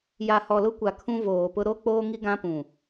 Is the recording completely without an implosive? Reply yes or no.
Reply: yes